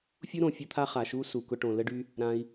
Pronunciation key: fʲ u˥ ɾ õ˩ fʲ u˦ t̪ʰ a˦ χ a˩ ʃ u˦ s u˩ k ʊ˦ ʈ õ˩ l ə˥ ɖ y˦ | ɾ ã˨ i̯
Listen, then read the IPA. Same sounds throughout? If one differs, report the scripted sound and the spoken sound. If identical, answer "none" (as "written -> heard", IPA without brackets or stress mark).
none